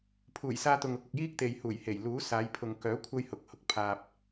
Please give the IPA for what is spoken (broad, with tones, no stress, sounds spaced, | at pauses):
pʰ uː˨˩ j s aː˧ t̪ ʊ˨ ŋ ʊ˧ k̚ ʊ˨ k̚ j iː˥ k̚ t̪ e˨ j h uː˨˩ j h e˨˩ j l uː˨˥ s aː˨˧ j pʰ ʊ˨ ŋ k œː˨˥ kʷʰ ɐ˥ j h ʊ˧ k̚ h ʊ˨ k̚ pʰ aː˨ p̚